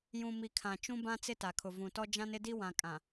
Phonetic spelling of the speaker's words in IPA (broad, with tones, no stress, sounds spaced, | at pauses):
j ũ˨ m i˨ kʰ ã˨ t͡ʃ ũ˦ b ã˦ t͡s ɪ˦ t a˨ kʰ ʊ˨ v ũ˨ t ɔ˦ d͡ʒ ã˦ n ɪ˦ d i˦ w ã˨ kʼ ã˨